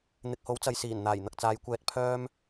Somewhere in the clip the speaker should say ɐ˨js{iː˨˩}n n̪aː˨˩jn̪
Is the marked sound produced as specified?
yes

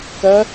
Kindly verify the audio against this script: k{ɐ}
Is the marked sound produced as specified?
yes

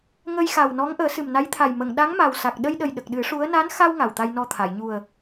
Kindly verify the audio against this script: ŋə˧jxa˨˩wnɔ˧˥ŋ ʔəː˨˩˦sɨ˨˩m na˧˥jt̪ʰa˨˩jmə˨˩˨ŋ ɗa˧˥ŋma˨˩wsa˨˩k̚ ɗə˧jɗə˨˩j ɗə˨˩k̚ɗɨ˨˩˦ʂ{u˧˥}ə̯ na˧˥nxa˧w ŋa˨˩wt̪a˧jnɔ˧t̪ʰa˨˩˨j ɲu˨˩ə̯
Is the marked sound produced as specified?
yes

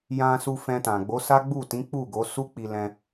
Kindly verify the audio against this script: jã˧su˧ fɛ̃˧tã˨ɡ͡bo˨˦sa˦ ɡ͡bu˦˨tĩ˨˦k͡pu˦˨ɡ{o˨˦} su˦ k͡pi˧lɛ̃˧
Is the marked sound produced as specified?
yes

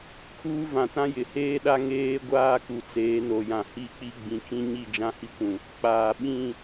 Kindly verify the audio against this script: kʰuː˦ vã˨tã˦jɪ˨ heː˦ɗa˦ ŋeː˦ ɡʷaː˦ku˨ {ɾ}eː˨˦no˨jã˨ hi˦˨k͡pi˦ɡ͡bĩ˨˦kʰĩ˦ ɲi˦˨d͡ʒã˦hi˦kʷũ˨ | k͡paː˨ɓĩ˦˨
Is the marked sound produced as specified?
no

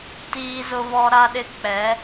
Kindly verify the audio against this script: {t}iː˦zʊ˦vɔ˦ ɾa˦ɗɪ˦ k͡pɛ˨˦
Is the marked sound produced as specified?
yes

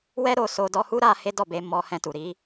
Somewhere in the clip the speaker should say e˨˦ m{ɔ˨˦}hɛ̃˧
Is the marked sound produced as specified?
no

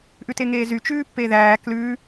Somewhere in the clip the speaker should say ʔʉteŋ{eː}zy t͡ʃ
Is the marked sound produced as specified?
yes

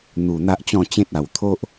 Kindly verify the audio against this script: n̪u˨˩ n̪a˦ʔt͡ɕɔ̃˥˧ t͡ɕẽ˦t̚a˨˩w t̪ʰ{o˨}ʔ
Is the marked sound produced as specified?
no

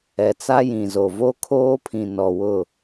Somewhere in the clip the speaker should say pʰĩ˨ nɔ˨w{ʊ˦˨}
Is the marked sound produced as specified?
yes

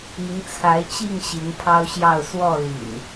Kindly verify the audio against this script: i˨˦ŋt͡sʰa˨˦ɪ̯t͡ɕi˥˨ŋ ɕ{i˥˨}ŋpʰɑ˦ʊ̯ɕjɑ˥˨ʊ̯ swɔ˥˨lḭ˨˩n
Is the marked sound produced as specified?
no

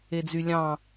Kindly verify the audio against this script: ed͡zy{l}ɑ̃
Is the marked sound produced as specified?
no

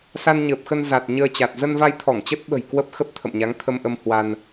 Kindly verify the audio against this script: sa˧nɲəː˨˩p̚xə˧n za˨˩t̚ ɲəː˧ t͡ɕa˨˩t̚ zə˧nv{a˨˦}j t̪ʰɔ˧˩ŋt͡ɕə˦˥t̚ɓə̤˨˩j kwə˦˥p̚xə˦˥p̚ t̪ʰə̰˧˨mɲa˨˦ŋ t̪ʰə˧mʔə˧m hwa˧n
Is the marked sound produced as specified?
no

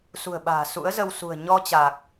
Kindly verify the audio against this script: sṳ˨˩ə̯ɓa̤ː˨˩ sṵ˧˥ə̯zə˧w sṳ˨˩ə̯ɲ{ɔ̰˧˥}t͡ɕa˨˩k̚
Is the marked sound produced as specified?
no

